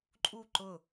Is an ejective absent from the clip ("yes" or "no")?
no